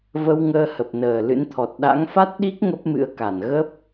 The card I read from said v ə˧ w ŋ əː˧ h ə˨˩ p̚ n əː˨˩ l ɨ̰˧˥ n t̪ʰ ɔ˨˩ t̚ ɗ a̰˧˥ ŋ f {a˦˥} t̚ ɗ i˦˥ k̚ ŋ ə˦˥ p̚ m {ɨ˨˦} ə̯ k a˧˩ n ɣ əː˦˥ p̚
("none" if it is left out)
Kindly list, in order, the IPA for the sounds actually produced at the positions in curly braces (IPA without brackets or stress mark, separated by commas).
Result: a˦˥, ɨ̰˧˥